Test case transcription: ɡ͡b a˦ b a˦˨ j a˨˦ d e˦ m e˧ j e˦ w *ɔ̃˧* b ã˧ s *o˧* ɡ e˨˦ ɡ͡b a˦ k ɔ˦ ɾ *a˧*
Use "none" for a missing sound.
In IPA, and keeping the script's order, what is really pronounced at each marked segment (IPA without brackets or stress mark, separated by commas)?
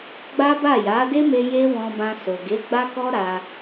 ɔ̃˧, o˨, a˧